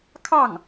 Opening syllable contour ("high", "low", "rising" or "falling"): falling